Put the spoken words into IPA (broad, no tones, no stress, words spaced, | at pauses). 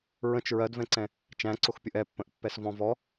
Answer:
ɹə̃t͡ʃ ɹɜdvɛ̃ǀɛ̃ | t͡ʃæ̃ǀʊxpʲʊʔ ɛpːə̃ʔpːɛs vɔ̃vɔ